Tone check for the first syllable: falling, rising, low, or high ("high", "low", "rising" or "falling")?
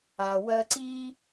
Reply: low